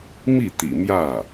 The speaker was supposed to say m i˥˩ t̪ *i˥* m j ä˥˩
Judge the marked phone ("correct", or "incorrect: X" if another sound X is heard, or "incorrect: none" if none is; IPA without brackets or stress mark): incorrect: ḭ˨˩